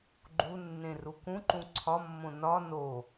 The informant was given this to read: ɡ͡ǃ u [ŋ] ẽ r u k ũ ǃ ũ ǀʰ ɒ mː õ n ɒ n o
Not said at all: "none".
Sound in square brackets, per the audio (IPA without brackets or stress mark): nː